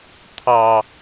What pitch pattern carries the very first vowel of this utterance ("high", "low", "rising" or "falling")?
low